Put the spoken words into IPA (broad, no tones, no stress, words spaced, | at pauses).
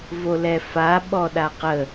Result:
volɛfa ɓɔɗaqə